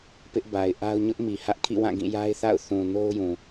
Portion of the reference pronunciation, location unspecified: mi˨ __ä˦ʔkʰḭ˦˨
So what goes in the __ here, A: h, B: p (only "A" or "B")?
A